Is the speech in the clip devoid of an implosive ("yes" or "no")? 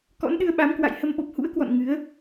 no